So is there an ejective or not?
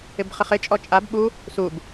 yes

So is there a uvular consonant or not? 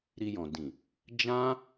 no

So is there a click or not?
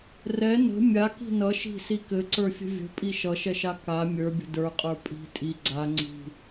yes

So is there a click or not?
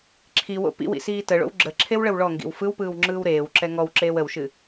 yes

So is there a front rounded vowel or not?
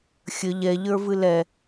no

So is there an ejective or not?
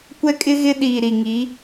yes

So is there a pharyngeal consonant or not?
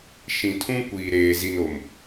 no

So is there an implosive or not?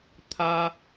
no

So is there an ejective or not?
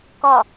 no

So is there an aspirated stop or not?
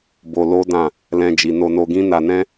no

